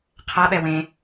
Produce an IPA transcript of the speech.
qʰ a ɓ ɛ w ẽ

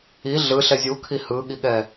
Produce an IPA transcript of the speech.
i ɮ ɯ ɬ ɛ zʲ u kʰ i h ɯ ɠ i ɠ ɛ

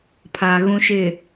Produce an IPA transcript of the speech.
pʰ a˨ ɣ ũ˨ ʃ ɪ˨

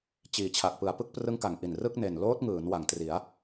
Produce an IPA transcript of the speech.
t͡ɕ iː˩˦ t͡ɕʰ a˨˩ k̚ p ɯ˨˩ a̯ p ɯ˥˩ k̚ p r ɯ˦˥ ŋ k a˩˦ ŋ ʔ i˨˩ n r ɯ˥˩ k̚ n e˨˩ n l oː˦˥ t̚ ŋ ɯː˩˦ n w a˩˦ ŋ t r i˩˦ a̯

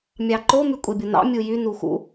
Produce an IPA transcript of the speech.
mʲ ɑ ǃ o m y kʷʼ e bʲ o n ɑ̰ mʲ u j y n u x ṵ

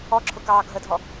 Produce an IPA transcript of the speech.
ɔ ǁʰ ʊ k ɑː ɡʱ ə dʱ ɔ

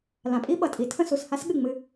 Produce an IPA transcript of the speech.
l ã˨ pʼ i˦ ɓ ʌ˨ tʼ i˨ tʰ ə̃˦ s u˨ s h a˦ s ɠ ɨ˦˨ ŋ͡m ɨ˦

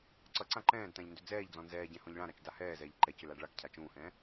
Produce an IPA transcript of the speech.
ǀ ʌ ǀ ã ǃ ɛ̃ː d t ã ʎ n d ʏ d͡z ɛː ʎ d͡z ɔ̃ n z ɛː ɟ ɛ̃ h ɔ̃ ʎ ɭ ã ɾ a t͡ʃ d a h ɛː z ɛː ʎ ǃ ɛ c ʏ l a ɖ ɭ a k cʰ a t͡ʃ ũː h ɛ̃ː

